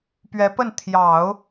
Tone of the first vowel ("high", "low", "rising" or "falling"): rising